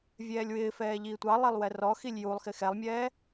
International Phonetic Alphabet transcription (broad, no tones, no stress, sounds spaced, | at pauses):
vʲ ɛː lʲ w ɪː f ɛː ʎ iː tʷ ɑ lˠ i lˠ w ɛ r ɔ x i lʲ j u lˠ x ɪ x ɛ lˠ mʲ ɛː